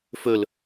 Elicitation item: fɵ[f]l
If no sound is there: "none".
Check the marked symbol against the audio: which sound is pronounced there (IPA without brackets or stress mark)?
none